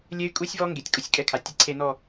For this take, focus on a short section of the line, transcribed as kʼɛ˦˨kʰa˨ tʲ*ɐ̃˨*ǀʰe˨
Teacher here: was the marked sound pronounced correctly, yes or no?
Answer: no